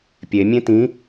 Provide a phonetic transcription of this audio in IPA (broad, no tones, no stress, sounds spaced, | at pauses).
pʲ e mʲ ẽ t ĩ